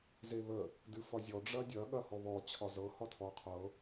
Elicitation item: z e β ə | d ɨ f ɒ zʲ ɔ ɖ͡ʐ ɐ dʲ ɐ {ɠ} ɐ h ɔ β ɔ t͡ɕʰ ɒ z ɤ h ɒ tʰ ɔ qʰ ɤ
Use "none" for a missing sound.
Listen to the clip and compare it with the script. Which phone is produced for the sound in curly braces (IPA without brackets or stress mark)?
ɠ